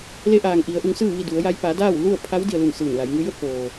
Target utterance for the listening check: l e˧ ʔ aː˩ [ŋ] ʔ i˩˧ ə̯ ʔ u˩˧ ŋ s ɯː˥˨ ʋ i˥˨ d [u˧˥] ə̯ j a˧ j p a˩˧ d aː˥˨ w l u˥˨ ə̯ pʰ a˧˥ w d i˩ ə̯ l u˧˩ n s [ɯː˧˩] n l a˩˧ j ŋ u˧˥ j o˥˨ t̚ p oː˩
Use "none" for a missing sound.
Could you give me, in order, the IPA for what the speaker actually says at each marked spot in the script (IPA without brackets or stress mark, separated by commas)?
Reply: ŋ, u˩˧, ɯː˧˩